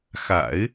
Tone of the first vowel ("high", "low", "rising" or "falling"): low